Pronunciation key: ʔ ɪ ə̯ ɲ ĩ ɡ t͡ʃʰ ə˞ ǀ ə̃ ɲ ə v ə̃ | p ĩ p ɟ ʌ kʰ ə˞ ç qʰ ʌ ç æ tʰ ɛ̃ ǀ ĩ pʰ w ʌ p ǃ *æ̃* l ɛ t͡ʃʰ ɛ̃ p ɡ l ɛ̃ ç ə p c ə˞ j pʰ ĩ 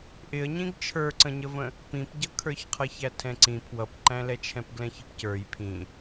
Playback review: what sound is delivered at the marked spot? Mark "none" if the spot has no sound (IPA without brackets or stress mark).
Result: æ̃